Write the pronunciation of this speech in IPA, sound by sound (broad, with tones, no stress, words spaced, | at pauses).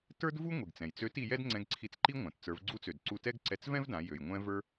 tə˞˥dvu˥ ŋʷi˩ɡt͡sɛ̃˩jt͡sø˧˥t i˧jɛ˥d ŋ͡ǀɛ̃˧ɡǀʰi˧t͡sǃi˥ ŋʷã˩t t͡sə˞˩˧vɡ͡ǀu˧˥t͡sø˩d ǀu˧tɛ˥ɡǀɛ˧t͡s vɛ̃˥vdã˩˧ jø˩j ŋʷɛ̃˧ və˞˧